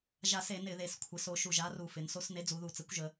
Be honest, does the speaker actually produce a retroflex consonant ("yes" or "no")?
no